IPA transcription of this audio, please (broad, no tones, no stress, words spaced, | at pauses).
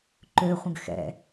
ǃøχʷə̃ɡ xɛ̰